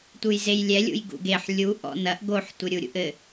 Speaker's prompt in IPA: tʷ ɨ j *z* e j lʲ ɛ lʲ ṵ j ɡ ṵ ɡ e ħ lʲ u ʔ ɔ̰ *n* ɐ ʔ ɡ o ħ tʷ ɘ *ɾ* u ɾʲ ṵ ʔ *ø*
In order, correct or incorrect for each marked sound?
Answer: correct, correct, incorrect, incorrect

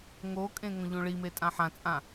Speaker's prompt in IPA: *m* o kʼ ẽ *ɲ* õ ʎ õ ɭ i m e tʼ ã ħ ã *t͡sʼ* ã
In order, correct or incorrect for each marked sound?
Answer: incorrect, incorrect, correct

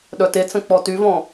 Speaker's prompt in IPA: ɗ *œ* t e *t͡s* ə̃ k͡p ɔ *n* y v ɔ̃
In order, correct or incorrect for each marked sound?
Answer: correct, correct, incorrect

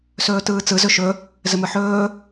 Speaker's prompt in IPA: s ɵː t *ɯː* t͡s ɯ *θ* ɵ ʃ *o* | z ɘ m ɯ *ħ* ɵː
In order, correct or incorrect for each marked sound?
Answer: correct, incorrect, incorrect, correct

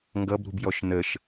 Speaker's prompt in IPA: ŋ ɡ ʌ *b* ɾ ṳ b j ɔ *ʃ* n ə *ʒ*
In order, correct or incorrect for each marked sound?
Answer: correct, correct, incorrect

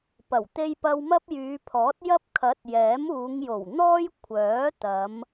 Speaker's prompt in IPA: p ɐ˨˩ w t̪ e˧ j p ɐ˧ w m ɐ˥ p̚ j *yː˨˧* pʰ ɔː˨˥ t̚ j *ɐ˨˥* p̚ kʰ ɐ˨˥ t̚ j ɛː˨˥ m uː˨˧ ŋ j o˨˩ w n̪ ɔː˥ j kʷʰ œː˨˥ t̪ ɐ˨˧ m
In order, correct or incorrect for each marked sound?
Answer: correct, incorrect

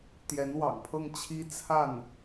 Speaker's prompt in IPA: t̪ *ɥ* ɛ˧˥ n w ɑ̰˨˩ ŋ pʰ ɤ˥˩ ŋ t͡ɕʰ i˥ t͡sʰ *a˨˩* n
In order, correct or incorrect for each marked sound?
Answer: incorrect, incorrect

